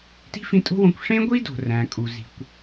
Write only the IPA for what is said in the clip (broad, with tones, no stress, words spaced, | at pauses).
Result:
ti̤˥fĩ˧tʼo̤˥wõ˧kʷ ʂẽ˥ɡʷi˥do̤˩ ræ̃˩ kʼu˩ zi̤˩kʷ